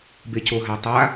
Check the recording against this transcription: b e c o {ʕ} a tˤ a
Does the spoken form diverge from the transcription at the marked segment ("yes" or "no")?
yes